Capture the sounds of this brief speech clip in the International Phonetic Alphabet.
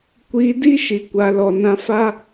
kʷiː˧di˦ ʃi˨kʷa˨lɔ˨nã˧ fa˦

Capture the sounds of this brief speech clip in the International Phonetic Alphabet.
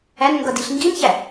ænŋɡʌdiɬ ŋɡinçæ

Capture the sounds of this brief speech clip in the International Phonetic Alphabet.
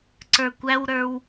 ǀə˞kʷæwɾə˞w

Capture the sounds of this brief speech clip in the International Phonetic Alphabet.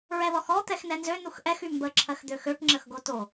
ɹɛðɔxɔ t̪ɛxnɛnzø nuxʔɛx ymbə ǁʰɜxd̪øxøʈ ŋ͡ǁəxɡoto

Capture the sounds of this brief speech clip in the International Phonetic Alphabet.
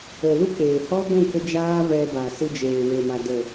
ə˨lu˦ k͡peː˨hɔ˦ɡʷũ˦˨ kə˦ d͡ʒaː˦ vɛ˧ba˨ sɨ˧d͡ʒeː˨we˨ma˨ də˨

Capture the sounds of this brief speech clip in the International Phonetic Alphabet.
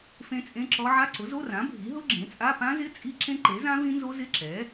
fẽ˦˥t͡sʼẽ˧˥˧ǁɔ˦˥ ʕa˧˥˧ǀʊ˩˥zo˧˥˧rã˩˥ bʱi˩˥ɦʊ˦˥ ɡ͡ǁẽ˩˥t͡sʼa˧˥˧ pã˦˥zɪ˧˥˧ t͡sʼi˦˥ǁẽ˦˥ǃe˩˥zã˦˥ vĩ˦˥nzo˦˥ zɪ˧˥˧ǁɛ˩˥

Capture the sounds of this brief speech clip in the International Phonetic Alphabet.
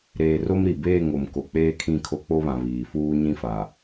ɾeː˨ro˦m ɾi˨beː˦˨ŋo˨m ko˨k͡peː˦kʰĩ˦˨ kʰo˦k͡po˦βã˨ βiː˨fuː˦ ɲĩ˦fa˨

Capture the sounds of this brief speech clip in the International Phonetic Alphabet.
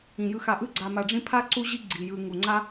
ĩ˩jɯ˨xa˨ʔɯ˥ ɡ͡ǀa˨ma˨ɖ͡ʐĩ˦ pʰa˥ǀu˦ʑi˦ ɡ͡ǀi˩jɯ˨ ŋu˩ŋ͡ǀa˥

